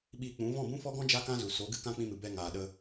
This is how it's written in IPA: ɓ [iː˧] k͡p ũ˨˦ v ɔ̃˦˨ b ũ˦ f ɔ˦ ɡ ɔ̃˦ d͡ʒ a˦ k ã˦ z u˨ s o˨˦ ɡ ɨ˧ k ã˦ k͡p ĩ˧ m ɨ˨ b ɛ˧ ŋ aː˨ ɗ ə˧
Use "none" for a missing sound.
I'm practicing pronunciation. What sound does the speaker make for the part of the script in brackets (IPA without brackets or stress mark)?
iː˧